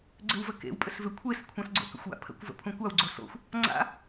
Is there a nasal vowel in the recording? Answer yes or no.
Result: yes